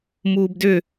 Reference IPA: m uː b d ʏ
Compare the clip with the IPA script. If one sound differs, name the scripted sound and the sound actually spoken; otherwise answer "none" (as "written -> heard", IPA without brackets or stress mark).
none